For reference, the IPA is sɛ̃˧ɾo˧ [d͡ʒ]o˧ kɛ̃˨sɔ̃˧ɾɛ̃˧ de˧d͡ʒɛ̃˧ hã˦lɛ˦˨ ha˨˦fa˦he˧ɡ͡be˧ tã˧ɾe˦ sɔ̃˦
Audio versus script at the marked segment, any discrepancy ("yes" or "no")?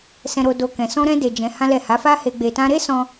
yes